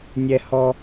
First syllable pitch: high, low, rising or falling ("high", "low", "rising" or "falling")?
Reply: high